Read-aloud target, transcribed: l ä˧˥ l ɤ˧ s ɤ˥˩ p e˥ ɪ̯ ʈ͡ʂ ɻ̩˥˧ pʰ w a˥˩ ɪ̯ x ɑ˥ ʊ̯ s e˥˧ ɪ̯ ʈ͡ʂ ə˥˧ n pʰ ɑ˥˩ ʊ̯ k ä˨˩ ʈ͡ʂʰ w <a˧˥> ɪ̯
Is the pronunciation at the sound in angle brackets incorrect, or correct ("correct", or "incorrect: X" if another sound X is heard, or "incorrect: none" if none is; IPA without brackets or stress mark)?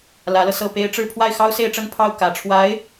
correct